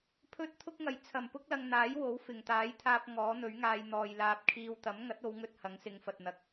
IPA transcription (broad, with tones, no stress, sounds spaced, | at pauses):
pʰ ɵ˥ t̚ t̪ʰ ʊ˥ k̚ ŋ ɐ˨˩ j t͡sʰ ɐ˨˩ m p ʊ˥ k̚ l ɐ˧ ŋ n̪ aː˨˥ j w o˨˥ w f ɪ˨˩ ŋ t̪ aː˨˥ j t̪ʰ aː˧ p̚ ŋ ɔː˨˥ n̪ ɵ˨˥ ɥ ŋ aː˧ j n̪ ɔː˨ j l aː˧ p̚ kʰ iː˧ w t̪ ɐ˨˥ m ŋ ɐ˨˥ t̚ o˨˧ w ŋ ɵ˧ t̚ h ɐ˨˥ ŋ s ɪ˨˧ ŋ f ɐ˨ t̚ n̪ ɐ˧ k̚